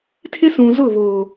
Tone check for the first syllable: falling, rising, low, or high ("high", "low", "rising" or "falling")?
high